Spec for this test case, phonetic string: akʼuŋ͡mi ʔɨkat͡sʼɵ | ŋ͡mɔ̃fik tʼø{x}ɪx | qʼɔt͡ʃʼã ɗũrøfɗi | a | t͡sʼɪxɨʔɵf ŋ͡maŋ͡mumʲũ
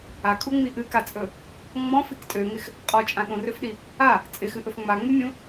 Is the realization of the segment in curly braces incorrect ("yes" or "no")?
yes